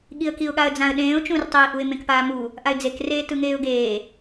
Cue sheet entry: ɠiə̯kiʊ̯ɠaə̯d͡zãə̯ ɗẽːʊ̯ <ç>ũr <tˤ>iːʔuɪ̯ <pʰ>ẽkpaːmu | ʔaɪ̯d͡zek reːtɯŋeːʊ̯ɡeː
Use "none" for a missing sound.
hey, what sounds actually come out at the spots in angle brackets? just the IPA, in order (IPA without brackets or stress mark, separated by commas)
t͡ʃ, tˤ, m